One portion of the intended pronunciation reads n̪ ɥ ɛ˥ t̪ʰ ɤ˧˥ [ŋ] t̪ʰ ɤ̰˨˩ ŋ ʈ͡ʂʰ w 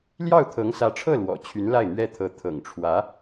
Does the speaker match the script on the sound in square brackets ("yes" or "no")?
no